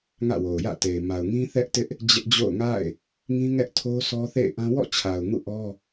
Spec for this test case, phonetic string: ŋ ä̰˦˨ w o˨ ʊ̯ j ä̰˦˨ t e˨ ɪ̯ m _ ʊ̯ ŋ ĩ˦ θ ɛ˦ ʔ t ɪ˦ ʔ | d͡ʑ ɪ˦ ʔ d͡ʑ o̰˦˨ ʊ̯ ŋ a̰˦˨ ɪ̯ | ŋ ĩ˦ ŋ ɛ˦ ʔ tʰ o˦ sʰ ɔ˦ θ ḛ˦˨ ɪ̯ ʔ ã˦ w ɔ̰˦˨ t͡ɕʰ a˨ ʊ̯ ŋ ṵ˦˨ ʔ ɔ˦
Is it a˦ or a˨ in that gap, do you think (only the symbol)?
a˨